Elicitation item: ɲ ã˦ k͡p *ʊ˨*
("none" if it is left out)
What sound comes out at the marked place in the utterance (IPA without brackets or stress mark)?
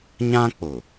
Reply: ʊ˨